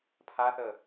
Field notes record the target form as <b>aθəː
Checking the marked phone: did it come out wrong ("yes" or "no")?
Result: yes